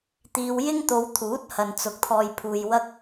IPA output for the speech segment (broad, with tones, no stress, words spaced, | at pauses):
t̪iː˧wjɪ˥ŋ t̪o˨˧wt̪ʰuː˨˥t̚ hɐ˨nt͡sʊ˨k̚t̪ʰɔː˨jpʰuː˨j wɐ˧k̚